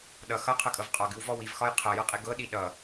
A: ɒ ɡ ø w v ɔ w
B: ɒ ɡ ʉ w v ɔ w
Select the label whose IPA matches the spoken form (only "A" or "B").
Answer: B